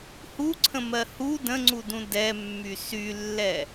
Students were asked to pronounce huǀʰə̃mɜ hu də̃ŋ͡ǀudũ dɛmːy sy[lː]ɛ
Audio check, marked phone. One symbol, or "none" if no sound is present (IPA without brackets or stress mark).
lː